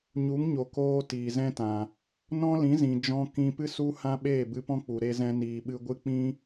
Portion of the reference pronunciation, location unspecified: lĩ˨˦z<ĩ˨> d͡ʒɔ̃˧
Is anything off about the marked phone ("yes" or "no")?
no